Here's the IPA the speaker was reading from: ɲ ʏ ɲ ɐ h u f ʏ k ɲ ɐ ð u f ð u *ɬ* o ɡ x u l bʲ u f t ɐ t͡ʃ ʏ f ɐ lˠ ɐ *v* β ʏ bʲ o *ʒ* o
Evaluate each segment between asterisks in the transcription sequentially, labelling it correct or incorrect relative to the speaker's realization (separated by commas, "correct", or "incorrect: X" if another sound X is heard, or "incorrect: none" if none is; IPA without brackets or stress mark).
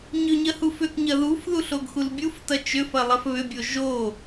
correct, incorrect: f, correct